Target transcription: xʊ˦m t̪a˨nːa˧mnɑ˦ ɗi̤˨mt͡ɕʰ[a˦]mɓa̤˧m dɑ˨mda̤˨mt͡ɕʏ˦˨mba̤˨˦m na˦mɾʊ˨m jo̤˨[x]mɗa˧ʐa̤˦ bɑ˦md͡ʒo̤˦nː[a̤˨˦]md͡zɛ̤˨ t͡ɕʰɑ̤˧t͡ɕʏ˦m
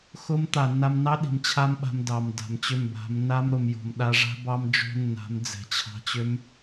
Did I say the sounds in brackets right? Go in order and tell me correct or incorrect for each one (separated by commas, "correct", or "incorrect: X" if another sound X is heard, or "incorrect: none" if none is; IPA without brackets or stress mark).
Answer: correct, incorrect: none, correct